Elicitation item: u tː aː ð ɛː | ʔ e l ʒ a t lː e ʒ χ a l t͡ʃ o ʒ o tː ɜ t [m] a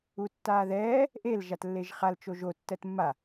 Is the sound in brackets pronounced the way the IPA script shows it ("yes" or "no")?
no